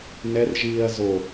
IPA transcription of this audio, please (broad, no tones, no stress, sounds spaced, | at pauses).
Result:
n ɛ r ʒ iː ɐ̯ z o